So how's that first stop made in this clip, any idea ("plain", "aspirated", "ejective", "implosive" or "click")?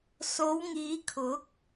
aspirated